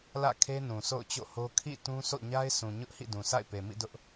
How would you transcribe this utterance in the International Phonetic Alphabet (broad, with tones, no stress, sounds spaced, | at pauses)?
l ä̰˦˨ kʰ e˦ n ũ˨ s o̰˦˨ ʊ̯ t͡ɕ o̰˦˨ h o˦ kʰ ḭ˦˨ t ũ˦ s o̰˦˨ ɲ a˦ ɪ̯ s ũ˨ ɲ ʊ˦ ʔ h ḭ˦˨ d ũ˨ sʰ a̰˦˨ ɪ̯ p e˨ m ḭ˦˨ d ʊ˦ ʔ